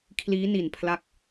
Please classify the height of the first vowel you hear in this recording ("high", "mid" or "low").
high